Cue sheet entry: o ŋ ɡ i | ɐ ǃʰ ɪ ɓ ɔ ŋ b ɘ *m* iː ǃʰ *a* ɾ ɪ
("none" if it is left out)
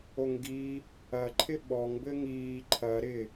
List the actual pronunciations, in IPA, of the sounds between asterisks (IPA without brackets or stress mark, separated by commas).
ŋ, ɐ